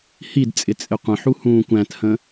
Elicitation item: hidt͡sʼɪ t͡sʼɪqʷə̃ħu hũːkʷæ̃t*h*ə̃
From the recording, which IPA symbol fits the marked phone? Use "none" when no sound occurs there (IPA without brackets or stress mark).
h